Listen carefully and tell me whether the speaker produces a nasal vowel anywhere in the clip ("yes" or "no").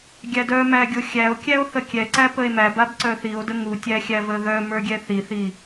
no